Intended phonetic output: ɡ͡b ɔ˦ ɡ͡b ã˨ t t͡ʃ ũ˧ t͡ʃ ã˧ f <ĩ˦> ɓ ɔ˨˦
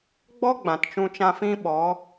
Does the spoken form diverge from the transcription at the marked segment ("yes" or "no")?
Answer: no